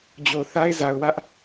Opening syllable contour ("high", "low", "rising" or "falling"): low